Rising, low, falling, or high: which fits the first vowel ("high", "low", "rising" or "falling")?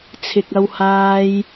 low